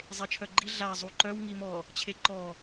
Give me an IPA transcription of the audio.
zˤet͡ʃʰœɡ͡ǃi ɮa zˤuǃœw ŋimɔ | t͡ɕʰeǃɔ

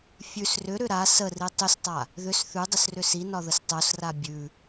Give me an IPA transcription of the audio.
fʲʉs rʏɾʏ ɾa səri tˤʏstˤa | ðʏs θʉdˤʏsrʏ sinɒðəs tˤosra bʲʉ

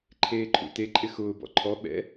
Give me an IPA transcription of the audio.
ǃʰeːǃʰṵte ǃʼɪxʊː bɔ̰ǃʰɔ ɓɛ̰

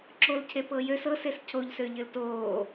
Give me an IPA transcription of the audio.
ǁolcʰe pɤjøs ɤses cʰoʎsø ʎɘltoː

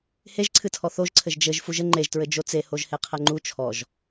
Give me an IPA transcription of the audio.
heʒǀʰɨtʰɔ θoʒǀʰɘʒ d͡ʒɘʒ fuʒɘ ŋ͡ǃeʒtɹɘ d͡ʒot͡sehoʒ heqʰɛŋ͡ǃu t͡ʃʰɔʒ

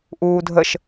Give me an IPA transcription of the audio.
ʔuːdʱəʃ

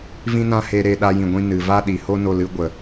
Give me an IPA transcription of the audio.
vĩ˦nã˦he˧ ɾe˦ɗa˦jĩ˧ɡʷĩ˦ nɨ˨va˦ɗi˨ ho˦no˧lɨ˧ ɡʷə˨

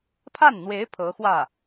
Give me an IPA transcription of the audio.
pʰa˥˩nn̪we˧˥ɪ̯ pʰɤ˧˥ xwä˥˩

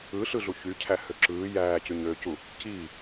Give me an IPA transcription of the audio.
ɯɬɯɮu çycʰæhø ǁɯː jæːcyɲøːcu | ciː

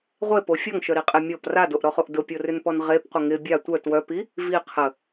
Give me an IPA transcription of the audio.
ʁʷepo fʲɔŋʃœɾiqʼe mʲɔp radoʔɾɔχoʔ dʊpʲorʏnpɔn ʁepqʷə ŋɪ bʲa tʷœ twœpi | vi qʰə

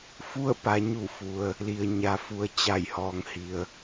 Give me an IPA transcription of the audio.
fu˥˨ə̯pa˩˧ɲu˧˩ fu˩ə̯ | li˩ə̯ɲa˩fu˩˧ə̯ t͡ɕa˧˩jhɔː˩˧ŋhi˩ə̯

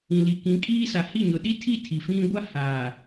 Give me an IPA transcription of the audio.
ĩ˨li˨kĩ˨˦kʼiː˦ sa˨hi˦˨ɲʊ˨ ɗi˦tʰi˦˨ tʰi˨fĩ˦ ɡʷa˦haː˨

